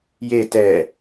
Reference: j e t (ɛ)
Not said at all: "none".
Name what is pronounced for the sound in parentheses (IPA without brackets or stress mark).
ɛ